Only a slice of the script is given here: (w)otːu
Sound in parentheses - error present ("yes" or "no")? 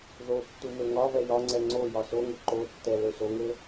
yes